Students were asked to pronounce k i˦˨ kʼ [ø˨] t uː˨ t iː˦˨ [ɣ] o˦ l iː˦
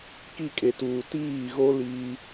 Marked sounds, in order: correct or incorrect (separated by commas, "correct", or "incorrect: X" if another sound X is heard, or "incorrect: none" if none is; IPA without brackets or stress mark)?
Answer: incorrect: e˨, correct